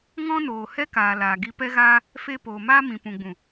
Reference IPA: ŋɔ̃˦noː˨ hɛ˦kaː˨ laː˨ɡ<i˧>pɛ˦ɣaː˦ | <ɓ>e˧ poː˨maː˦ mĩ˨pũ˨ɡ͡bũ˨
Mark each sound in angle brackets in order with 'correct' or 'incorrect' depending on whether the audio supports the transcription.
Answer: correct, incorrect

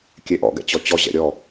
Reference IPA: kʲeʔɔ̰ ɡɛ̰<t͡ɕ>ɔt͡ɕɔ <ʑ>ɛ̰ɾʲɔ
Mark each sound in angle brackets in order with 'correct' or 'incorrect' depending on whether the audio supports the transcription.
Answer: correct, correct

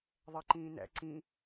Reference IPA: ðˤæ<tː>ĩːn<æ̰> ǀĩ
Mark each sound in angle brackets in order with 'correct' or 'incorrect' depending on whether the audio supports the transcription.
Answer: incorrect, correct

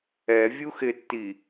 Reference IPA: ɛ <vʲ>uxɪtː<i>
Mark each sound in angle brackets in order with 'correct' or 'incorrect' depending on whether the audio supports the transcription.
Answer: correct, correct

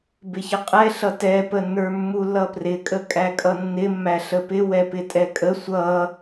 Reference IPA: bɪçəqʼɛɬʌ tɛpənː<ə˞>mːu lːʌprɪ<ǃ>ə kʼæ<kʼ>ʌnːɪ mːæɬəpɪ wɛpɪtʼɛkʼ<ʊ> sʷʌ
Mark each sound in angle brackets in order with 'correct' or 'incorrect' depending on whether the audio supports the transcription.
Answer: correct, incorrect, correct, incorrect

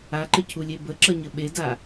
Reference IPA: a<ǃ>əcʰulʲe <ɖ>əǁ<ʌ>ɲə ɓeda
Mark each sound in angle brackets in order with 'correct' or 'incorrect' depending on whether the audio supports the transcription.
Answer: correct, incorrect, correct

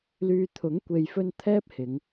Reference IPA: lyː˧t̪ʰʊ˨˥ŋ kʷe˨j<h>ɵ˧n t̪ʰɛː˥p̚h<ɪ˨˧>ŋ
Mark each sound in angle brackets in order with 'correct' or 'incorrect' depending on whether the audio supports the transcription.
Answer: incorrect, correct

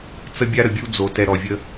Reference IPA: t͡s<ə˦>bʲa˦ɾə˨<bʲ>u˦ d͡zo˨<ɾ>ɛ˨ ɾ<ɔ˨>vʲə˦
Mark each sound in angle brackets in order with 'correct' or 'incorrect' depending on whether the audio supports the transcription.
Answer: correct, correct, incorrect, correct

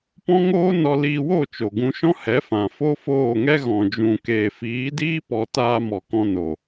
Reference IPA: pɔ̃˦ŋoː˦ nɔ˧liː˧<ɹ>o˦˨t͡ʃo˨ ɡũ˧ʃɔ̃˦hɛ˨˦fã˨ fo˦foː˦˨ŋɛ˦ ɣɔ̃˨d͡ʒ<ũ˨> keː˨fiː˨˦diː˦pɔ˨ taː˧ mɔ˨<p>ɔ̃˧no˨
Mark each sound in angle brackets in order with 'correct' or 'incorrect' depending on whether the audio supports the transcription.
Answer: incorrect, correct, incorrect

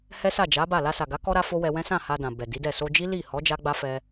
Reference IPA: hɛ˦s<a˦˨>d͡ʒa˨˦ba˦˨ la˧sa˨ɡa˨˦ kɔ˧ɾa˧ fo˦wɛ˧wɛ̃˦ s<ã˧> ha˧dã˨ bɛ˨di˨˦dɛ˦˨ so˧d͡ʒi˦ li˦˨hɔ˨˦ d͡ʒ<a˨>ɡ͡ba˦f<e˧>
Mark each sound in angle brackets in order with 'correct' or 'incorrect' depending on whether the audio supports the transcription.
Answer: correct, incorrect, incorrect, incorrect

